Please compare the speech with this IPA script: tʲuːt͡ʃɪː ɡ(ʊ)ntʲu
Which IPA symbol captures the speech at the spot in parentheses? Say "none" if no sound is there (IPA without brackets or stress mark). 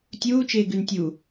ʉ